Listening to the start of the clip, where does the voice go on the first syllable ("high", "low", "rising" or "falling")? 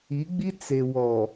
rising